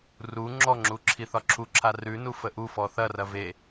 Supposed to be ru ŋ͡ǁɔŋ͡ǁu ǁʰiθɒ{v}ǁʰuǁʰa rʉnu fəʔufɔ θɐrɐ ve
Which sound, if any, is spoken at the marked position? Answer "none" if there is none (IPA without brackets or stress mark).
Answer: none